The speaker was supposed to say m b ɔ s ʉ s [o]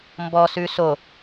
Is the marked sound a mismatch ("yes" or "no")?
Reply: no